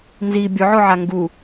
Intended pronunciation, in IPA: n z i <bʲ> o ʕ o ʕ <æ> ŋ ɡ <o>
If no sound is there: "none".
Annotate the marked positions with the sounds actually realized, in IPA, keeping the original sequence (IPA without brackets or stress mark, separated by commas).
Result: bʲ, a, u